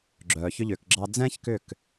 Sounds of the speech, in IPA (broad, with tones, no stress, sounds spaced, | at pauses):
ɡ͡ǁ œː˨ ç ʏ˧ ʎ ʏː˨ k ɡ͡ǁ ɑ˧ d͡z ɛ̃ː˦ ç k ʏ˦˨ k